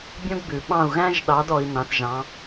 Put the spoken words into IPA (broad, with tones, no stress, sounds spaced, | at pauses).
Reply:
bʲ õ˥ ɡ b ʉ˩ ɓ ɑ̃˦˨ u̯ ɣ æ̃˥ ʒ ɗ ɑ˨˥ d ɔ˨˥ i̯ n ɑ̃˨˥ θ ʒ ɑ̃˨˥